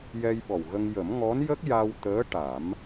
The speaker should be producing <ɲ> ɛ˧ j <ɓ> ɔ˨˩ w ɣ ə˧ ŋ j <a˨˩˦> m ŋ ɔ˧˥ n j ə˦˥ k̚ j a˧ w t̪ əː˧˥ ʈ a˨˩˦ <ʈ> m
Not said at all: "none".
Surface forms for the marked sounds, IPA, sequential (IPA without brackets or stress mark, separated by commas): j, ɓ, ə˨˩˦, none